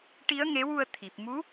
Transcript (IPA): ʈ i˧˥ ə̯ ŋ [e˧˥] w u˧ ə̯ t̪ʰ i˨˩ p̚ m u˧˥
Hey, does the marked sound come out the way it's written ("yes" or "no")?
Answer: yes